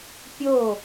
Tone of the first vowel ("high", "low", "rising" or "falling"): falling